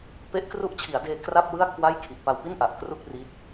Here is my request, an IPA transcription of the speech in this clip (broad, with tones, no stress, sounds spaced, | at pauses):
p e˦˥ ʔ k r u˦˥ ʔ t͡ɕʰ i˩˦ a̯ d eː˧ k r a˥˩ p̚ w ɯ˥˩ a̯ kʰ w a˥˩ j kʰ i˨˩ ʔ p a˧ w p i˥˩ n ʔ a˨˩ ʔ k r u˥˩ k̚ r i˦˥ t̚